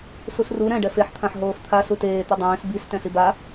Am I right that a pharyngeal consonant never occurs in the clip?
no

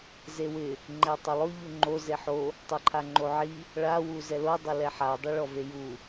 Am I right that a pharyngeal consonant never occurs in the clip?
no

